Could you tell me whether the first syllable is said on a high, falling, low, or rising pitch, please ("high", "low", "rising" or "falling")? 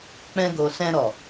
high